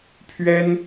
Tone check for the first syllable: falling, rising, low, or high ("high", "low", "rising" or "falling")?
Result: high